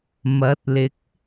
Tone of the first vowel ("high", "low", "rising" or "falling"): rising